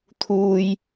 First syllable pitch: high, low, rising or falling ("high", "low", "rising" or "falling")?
high